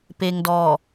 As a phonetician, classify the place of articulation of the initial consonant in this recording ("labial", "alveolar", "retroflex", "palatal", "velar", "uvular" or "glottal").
labial